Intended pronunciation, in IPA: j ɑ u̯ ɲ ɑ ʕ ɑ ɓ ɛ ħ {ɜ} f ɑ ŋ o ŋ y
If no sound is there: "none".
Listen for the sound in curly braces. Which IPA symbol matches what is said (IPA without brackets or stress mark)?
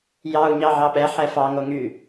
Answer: ɛ